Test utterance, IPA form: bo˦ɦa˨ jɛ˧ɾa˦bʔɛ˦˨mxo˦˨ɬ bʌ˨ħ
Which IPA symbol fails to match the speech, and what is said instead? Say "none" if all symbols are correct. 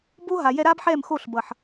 ʔ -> ħ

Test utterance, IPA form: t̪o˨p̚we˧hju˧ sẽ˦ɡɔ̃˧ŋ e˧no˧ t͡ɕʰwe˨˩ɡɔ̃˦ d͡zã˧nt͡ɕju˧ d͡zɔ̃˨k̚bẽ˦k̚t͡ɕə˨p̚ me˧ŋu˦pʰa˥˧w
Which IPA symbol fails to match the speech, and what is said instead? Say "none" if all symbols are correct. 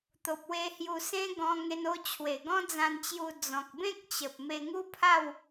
none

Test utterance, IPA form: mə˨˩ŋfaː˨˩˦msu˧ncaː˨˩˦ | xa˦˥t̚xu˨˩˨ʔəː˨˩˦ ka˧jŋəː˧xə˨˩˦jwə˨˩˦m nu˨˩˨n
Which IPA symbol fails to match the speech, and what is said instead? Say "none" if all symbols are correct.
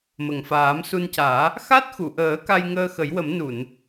none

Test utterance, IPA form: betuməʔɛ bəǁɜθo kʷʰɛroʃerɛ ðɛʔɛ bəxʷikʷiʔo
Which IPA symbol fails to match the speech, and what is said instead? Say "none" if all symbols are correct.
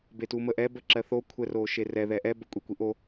xʷ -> kʷʼ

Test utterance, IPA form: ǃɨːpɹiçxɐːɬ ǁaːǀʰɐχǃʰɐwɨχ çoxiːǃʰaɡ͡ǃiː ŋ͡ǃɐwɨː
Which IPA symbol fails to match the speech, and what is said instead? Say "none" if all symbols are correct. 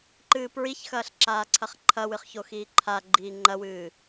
none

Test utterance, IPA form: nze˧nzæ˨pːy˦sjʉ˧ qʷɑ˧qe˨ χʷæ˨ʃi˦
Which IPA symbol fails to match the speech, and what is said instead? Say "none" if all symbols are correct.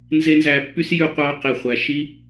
none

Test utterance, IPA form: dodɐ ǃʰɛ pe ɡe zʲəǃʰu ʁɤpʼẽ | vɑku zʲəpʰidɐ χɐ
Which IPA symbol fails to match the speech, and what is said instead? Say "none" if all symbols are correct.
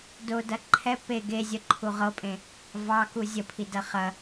none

